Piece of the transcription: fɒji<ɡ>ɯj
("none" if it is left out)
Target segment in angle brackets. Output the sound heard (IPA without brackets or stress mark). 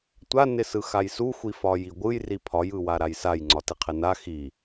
ɡʷ